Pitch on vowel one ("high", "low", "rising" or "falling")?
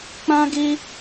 high